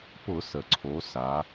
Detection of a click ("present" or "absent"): present